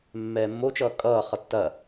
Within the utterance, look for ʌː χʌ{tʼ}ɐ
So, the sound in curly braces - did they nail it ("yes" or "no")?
no